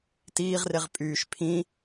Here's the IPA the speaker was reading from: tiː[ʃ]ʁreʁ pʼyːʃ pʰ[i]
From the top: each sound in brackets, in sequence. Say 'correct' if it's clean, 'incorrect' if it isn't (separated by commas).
incorrect, incorrect